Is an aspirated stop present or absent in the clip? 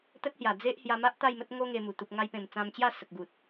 absent